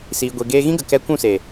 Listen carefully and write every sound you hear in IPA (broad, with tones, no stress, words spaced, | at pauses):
siː˧ɡʷe˧ ɡeː˧ɣĩ˦ɡə˨ kɛ˧kʷũ˦˨se˨